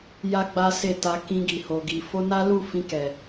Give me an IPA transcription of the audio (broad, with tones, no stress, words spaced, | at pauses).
ja˦ɡ͡ba˦ se˦˨ta˧ kĩ˧ɡi˨ho˨ɡi˨ fo˧na˦lu˦˨ fĩ˧kɛ˨